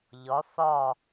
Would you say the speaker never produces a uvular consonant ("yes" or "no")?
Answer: yes